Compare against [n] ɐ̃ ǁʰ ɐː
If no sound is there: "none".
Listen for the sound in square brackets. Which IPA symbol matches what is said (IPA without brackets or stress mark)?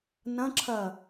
n